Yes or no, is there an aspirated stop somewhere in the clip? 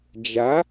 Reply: no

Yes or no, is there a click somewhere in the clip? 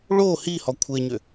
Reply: no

